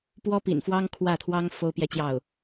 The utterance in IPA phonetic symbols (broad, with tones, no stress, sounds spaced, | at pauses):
p w ɔ˥ p ḭ˨˩ n f w ɑ˥ ŋ kʰ w ä˥˩ t̪ʰ w ɑ˥ ŋ f o˥ ʊ̯ p j ɛ˥˧ t͡ɕ j ɑ˥˩ ʊ̯